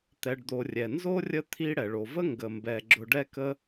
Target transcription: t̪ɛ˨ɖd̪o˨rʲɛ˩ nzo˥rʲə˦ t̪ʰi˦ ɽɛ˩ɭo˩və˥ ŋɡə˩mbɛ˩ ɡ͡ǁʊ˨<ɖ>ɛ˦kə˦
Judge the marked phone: correct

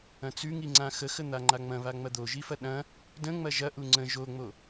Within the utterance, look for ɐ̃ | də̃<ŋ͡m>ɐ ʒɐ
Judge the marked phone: correct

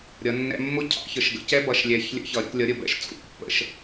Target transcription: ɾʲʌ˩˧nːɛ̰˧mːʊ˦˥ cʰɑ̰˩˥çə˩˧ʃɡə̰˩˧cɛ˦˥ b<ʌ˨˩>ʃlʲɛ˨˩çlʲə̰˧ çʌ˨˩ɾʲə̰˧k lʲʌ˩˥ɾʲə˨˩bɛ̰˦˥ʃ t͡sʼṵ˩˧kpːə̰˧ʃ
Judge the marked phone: correct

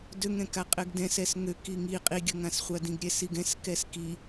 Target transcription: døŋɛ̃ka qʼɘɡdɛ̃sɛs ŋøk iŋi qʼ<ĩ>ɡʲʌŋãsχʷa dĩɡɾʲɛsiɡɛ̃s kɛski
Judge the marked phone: incorrect: i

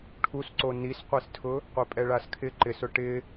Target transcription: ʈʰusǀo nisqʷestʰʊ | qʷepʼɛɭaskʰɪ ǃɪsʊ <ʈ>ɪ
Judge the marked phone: correct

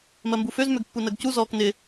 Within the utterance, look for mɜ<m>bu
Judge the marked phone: correct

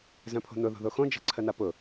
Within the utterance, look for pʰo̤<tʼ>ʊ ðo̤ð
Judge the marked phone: incorrect: n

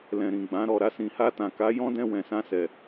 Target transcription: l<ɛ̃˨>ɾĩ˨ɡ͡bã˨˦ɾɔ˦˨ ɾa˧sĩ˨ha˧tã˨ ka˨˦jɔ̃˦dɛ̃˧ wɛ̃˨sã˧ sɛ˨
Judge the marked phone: correct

